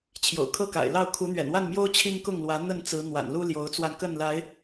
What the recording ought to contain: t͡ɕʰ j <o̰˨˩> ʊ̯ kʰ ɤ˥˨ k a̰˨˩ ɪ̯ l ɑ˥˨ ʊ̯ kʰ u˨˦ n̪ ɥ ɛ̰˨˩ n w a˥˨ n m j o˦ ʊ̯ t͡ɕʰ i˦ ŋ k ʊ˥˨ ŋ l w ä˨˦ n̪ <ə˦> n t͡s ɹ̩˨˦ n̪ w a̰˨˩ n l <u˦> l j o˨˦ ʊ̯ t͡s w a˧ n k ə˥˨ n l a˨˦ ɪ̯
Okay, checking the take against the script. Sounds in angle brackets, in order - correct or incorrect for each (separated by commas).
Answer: correct, incorrect, correct